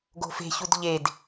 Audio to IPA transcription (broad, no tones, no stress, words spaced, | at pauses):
ɡo̤fe̤çud ʎed